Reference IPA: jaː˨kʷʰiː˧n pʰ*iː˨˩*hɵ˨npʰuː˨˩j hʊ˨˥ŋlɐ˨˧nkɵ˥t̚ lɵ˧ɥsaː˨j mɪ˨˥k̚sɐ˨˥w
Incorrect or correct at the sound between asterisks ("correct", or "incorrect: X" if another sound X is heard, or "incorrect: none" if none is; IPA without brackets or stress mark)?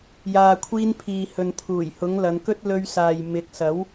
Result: incorrect: iː˨